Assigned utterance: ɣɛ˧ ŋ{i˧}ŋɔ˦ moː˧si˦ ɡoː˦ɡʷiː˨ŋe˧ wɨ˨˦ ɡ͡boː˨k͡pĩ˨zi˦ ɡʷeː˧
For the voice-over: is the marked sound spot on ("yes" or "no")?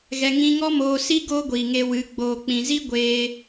no